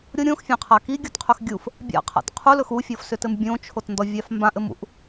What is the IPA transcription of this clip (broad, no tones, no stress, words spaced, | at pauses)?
ɾʲo ɾʲõxfʲãqʰa kiɡʲɔtqʰɵx ɡʲuf | bʲa̰qʰa̰t qʰulɵx ufʲɔfsʏtɘm bʲõt͡ʃʰotndɔvʲaf mbãʔɘmṵʔ